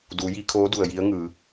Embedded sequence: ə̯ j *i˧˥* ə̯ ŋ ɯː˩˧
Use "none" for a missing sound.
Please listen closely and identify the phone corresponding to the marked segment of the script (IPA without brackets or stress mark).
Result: i˧˥